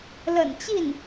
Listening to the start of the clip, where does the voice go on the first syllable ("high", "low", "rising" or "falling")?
low